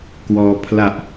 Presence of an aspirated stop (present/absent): present